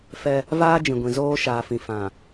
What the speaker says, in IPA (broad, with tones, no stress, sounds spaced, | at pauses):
f ɛ˦ | v aː˦ d͡ʒ ĩ˨ ɡʷ ĩ˨ z oː˦ ʃ aː˨ f ĩ˨ f ã˨